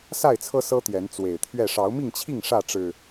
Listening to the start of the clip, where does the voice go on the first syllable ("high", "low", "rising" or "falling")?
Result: falling